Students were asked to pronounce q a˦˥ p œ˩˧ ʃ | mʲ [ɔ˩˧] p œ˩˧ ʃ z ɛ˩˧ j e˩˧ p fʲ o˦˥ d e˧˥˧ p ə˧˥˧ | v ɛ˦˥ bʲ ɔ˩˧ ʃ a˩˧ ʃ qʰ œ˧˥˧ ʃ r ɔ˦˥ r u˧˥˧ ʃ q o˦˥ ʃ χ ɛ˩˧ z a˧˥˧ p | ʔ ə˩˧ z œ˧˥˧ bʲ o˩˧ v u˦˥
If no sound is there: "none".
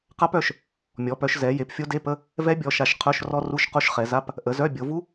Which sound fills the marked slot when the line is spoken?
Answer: ɔ˩˧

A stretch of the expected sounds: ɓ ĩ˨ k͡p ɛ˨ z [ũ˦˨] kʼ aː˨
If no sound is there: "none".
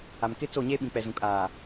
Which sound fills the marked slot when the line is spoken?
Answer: ũ˨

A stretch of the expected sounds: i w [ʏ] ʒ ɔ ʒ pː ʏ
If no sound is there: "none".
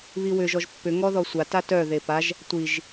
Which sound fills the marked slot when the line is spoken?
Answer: ʏ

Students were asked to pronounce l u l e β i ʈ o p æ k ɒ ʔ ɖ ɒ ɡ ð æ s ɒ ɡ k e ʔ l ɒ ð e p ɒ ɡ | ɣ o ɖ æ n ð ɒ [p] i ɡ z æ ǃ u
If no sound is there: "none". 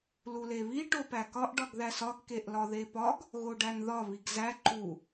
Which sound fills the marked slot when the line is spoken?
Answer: β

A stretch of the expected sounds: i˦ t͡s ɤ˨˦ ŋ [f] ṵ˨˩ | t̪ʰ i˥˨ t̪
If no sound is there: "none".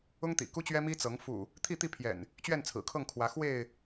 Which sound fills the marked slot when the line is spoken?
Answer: f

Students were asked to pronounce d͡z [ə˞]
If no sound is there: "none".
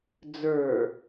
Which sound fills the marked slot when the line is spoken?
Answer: ə˞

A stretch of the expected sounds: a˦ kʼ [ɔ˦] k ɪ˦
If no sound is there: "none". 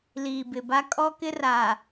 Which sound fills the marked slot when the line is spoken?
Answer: ɔ˦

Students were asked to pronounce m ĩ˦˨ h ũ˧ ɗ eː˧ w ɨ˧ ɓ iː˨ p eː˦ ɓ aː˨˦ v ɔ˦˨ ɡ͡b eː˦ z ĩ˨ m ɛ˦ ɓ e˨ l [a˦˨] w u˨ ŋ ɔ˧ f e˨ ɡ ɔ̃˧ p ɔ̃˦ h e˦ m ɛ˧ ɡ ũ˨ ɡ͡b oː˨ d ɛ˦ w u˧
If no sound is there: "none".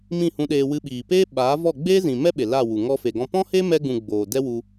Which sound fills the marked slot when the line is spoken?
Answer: a˦˨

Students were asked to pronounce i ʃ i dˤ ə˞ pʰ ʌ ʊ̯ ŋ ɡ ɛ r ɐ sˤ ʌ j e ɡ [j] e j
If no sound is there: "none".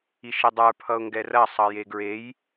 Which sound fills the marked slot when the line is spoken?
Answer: ɹ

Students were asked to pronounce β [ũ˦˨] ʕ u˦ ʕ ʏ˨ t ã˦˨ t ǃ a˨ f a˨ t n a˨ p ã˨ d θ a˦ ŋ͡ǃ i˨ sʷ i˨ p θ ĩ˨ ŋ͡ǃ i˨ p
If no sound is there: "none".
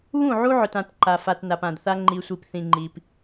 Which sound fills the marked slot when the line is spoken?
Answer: ũ˦˨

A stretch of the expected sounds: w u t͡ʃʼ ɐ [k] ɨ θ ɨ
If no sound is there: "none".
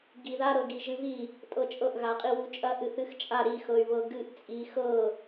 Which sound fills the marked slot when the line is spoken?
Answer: ʔ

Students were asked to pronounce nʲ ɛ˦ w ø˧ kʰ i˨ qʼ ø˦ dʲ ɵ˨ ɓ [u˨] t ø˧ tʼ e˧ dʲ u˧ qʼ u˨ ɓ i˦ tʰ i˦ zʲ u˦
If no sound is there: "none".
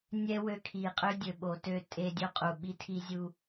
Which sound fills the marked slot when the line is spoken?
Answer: o˨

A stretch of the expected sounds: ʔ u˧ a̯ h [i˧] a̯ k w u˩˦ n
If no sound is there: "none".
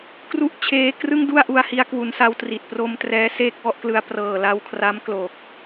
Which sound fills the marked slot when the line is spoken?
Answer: i˧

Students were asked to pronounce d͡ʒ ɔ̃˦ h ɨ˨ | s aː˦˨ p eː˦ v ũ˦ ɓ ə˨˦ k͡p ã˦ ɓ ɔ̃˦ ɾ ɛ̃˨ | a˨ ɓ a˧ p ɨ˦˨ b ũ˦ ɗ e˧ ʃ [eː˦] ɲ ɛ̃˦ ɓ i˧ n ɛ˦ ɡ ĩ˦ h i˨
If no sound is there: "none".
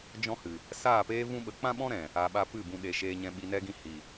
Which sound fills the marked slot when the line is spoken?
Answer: eː˦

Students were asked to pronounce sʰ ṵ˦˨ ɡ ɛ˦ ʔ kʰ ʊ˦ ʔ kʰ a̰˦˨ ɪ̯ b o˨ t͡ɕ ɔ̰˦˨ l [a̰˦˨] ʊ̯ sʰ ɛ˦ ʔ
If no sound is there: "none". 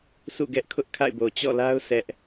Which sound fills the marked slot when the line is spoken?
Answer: a˦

